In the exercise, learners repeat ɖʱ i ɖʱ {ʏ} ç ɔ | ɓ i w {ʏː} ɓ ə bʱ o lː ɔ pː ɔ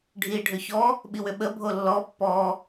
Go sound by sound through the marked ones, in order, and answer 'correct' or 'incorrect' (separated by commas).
correct, incorrect